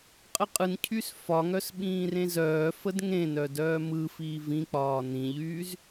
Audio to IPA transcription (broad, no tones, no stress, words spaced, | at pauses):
qʼəqʼɯncʰys fɒŋœs ɓĩːrẽzœːfəd ŋẽnœ dœːmɯfiː vĩk͡pɒː nĩʎyːz